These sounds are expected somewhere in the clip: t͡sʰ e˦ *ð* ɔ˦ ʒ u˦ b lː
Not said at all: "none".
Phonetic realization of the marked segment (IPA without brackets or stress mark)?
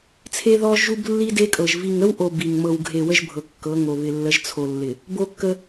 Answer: ð